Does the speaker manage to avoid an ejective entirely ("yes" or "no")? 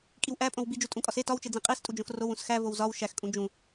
no